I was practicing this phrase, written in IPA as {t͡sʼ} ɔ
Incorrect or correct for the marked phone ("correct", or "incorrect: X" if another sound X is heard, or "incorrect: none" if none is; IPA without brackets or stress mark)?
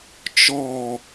incorrect: t͡ʃ